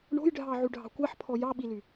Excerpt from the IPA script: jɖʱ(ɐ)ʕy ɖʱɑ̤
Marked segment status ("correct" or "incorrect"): incorrect